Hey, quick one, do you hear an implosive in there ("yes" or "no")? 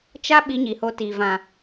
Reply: yes